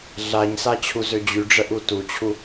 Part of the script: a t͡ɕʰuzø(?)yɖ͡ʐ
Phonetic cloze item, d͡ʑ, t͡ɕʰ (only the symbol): d͡ʑ